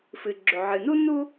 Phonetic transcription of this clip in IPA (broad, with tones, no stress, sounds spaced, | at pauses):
f ɨ˩ ɡ͡ǁ ɵ˩ ʕ ɨ˩ n u˥ n u˥